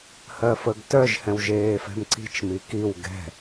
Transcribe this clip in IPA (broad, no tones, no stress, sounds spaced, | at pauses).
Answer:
h ɜ f ə ɡ t œ ʒ h ɛ̃ w ʒ eː f ɛ̤ m ǀ i̤ t͡ʃ m i k i w ɡ ɛ̤